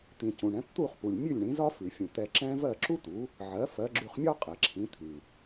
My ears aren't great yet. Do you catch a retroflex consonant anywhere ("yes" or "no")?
yes